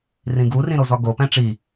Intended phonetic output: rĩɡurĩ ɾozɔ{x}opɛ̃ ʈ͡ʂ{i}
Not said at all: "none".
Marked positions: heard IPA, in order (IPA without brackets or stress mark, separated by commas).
ɡ, i